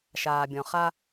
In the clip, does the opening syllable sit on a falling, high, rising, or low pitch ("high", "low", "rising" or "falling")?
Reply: low